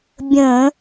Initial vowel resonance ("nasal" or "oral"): nasal